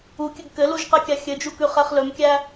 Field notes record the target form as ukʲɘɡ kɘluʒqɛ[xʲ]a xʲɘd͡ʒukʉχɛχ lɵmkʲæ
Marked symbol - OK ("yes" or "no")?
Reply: no